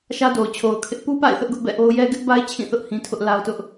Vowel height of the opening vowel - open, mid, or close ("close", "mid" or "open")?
open